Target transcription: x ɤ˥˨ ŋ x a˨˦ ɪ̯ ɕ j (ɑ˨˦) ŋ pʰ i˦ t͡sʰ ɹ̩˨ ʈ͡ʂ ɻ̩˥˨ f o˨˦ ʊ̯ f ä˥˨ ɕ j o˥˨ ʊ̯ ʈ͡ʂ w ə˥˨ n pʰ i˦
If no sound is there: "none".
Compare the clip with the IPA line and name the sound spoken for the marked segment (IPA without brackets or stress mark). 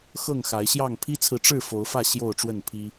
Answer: ɑ˥˨